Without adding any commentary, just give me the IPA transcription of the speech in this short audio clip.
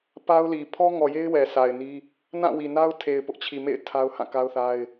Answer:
p a˦ ʊ̯ l i˨ pʰ ɔ˦ ŋ ɔ˨ j e˦ ɪ̯ w ɛ˨ sʰ a˨ ɪ̯ n i˦ | n ã˦˨ w i˨ n a˦ ʊ̯ tʰ e˨ ɪ̯ p ʊ˦ ʔ t͡ɕʰ i˨ m ḛ˦˨ ɪ̯ tʰ a˦ ʊ̯ h ã˦˨ k a˦ ʊ̯ θ a˦ ɪ̯

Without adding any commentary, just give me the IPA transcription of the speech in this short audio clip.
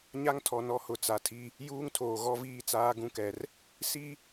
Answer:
ɲ a˦ ŋ tʰ ɔ˨ n ɔ˦ h ʊ˨ t͡s a˨ tʰ i˦ | j uː˦ ŋ tʰ oː˨ ɣ ɔ˦ v iː˦ t͡s aː˦ ɡ ũ˦ k ɛ˨ r | s i˦

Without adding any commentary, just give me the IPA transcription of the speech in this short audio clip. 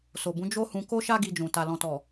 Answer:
s o˨ b ũ˨˦ d͡ʒ o˦ h ũ˧ k o˦ ʃ a˦ ɡ i˧ d͡ʒ ũ˨ t a˨ l ɔ̃˨ t ɔ˨

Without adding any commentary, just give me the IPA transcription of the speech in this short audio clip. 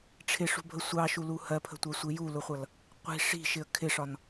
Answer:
ʈ͡ʂʰ ɪ ʂ ṳ bʱ ə sʷ ɑ ʃ u l u h ɜ pʰ ə̤ tʷ ɜ sʷ i j u l ʊ χʷ ʌ l | qʷ i̤ ʂ i̤ ʃ ɪ ə̯ kʰ ɪ ʂ ɒ n

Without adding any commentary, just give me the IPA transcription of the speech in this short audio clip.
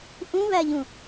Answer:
ʔ ũ β æ ʎ ũ

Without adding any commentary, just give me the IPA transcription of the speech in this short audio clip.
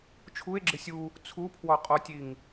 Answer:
t͡ʃʰ u e̯ ɡ͡ǁ ɪ sʲ u | t͡sʰ u pʰ w ɔ qʼ ɔ tʲ i ŋ

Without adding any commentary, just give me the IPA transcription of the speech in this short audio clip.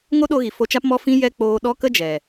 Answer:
ŋ o˦ ɗ o˧ ɣ i˨ f o˧ t͡ʃ a˦ p m ɔ˦ f ĩ˦ j ɛ˧ k͡p oː˧ ɗ ɔ˦ k ə˦ d͡ʒ ɛ˨

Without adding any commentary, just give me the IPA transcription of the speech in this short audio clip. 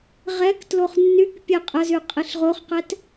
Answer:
ʁ ɛ k t l o χ nː y k pʲ e qʼ ə z y qʼ i ɬ ʁ o χ q ɛ t

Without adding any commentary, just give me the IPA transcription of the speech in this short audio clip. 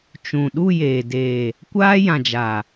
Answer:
t͡ʃ ũ˨ ɗ u˦˨ j eː˨ d eː˨ | kʷ aː˦ j ã˨ d͡ʒ a˨

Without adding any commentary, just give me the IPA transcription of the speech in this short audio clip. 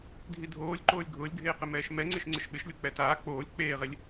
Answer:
dʱ i dʱ oː lʲ ǃ oː lʲ ɡʱ ʊː lʲ ɡʱ eː q ɪ m ɛː ʃ m ɛ ŋ͡ǀ ɪ ʃ ŋ͡ǀ ɪ ʃ ɓ ɪ ʃ lʲ o k͡p ɛ t aː k͡p oː lʲ k͡p eː ʁ e lʲ

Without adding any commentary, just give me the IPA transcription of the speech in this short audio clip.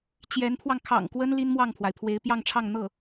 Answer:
t͡ɕ j ɛ˧˥ n pʰ w ɑ˧ ŋ kʰ ɑ̰˨˩ ŋ k w ə˥ n l i˥ n m w ɑ˥˩ ŋ pʰ w a˩ ɪ̯ pʰ w e˧˥ ɪ̯ p j ɑ˥˧ ŋ ʈ͡ʂʰ ɑ˥˧ ŋ n̪ ɤ˥˩

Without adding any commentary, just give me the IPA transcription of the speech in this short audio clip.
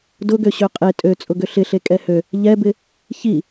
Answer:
d ʊ ɡ ø ɕ ø qʼ e tʼ ø t͡sʼ ʊ ɡ ʏ ɬ ɪ ɬ e kʼ ɛ h ø | ʎ ɛ b ɪ | ç i

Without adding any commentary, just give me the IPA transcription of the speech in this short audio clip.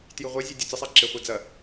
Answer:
t j ɨ ʁʷ ɐ zʲ e dʲ o t͡s ɘ sˤ a ǁ e χʷ a d͡z ɐ

